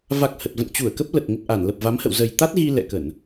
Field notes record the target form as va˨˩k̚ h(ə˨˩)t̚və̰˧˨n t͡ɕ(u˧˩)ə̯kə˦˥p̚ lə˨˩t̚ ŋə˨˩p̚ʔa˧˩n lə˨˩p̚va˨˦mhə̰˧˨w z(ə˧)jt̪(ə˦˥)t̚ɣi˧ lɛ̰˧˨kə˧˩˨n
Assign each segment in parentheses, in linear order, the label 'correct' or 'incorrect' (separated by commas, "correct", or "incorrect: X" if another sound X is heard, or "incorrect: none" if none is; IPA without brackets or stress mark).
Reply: correct, correct, incorrect: ə˨˩, incorrect: a˦˥